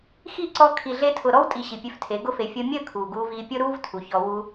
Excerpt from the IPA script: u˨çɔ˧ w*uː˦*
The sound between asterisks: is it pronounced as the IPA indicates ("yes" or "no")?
no